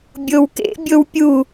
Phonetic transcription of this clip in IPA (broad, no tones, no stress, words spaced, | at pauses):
bʲowkḛbʲow pʲu